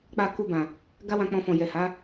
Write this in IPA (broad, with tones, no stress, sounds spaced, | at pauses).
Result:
k͡p a˧ k u˧ b ã˨ | ɡ a˦ w ã˧ k͡p ɔ̃˧ f ɔ̃˨ j ɛ˨ h a˨˦